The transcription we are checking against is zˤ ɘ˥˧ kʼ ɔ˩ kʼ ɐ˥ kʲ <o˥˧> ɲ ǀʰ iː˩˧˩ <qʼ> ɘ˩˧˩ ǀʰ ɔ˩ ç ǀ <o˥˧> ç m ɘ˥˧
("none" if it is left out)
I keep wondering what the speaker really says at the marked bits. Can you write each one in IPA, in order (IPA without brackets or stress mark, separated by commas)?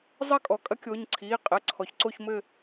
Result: o˩˧˩, qʼ, o˥˧